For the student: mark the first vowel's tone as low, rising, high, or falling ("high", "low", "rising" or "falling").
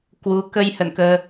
rising